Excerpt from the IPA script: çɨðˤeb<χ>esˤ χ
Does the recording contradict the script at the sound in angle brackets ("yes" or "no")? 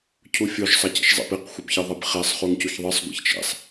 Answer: no